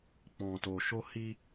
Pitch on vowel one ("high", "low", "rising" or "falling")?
low